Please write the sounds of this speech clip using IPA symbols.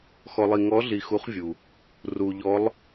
x ɔ˩ lˠ i˩ ŋ ɔ˨˦ ɮ i˩ x u˨˦ χ vʲ u˩ | r u˩ ʎ ɔ˨˦ lˠ

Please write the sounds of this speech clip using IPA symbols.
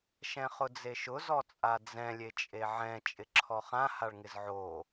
ʃ ɛ̃ χ ʊ d͡z e ʃ ʊ z ɔ t͡sʼ a d͡z ɛ̃ lʲ e t͡ʃʼ e ʕ ɛ̃ t͡ʃʼ ɪ ǁʰ ɔ χ ã h a ɭ ŋ ɪ z ʕ o

